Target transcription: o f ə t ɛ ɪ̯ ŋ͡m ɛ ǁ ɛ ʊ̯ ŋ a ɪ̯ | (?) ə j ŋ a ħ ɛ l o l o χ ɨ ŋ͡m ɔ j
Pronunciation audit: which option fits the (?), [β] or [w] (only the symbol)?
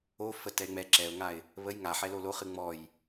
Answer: β